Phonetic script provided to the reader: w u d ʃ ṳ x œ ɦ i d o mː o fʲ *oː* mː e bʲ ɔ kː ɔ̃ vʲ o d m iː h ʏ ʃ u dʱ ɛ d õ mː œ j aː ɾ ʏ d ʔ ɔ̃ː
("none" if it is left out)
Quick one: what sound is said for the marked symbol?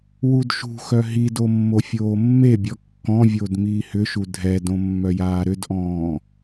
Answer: oː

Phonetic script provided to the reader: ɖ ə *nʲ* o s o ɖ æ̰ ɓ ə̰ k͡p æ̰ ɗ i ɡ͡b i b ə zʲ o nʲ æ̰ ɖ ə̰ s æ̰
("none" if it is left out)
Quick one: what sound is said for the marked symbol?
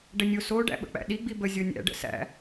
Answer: nʲ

